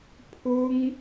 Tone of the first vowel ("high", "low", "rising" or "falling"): high